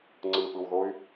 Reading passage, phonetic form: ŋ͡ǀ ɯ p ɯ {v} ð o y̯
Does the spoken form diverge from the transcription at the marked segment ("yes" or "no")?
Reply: yes